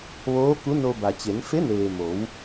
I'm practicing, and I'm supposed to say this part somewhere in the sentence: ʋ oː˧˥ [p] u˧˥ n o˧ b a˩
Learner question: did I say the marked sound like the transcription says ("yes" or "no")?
no